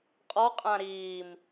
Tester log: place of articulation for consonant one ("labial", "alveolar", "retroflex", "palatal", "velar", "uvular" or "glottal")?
uvular